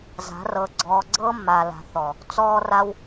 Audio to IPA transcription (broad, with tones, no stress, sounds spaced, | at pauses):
z a̤˨˦ r ɤ˧ ɡ͡ǀ ɔː˧ ɡ͡ǀ ɤː˦ mː aː˨ l a̤˨ θ ɔ˨ | t͡s ɔː˧ r a˧ w